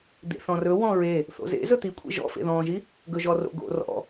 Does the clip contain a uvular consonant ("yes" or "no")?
no